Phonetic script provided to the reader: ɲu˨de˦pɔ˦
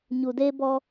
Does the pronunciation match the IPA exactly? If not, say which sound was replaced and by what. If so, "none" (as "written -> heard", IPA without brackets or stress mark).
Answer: p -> b